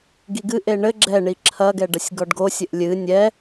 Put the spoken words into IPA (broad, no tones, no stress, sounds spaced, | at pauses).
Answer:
ɡ i ɡ ɨ ʔ e ɳ ɘ ɡ͡ǁ ɛ ɳ i ǁʰ ɐ ɡ ɛ ɖ ɐ sʲ ɡ ɔ ɖ ɡ o sʲ ɘ ʔ lʲ ɨ nʲ ɛ